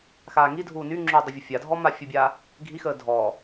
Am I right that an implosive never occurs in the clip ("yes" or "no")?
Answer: yes